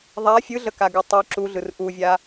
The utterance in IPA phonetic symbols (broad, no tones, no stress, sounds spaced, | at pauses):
ðˤ a fʲ ɯ ɮ ə k a ɡ ɯ tˤ œ ǁ u ɮ ɯ r ʔ u vʲ a